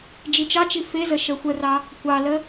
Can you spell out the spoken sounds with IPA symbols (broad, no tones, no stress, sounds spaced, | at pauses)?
d͡ʒ i t͡ʃ ɑ t͡ʃ i f e z ə ʃ ə xʷ ə r ɑ | kʷ ɑ l ə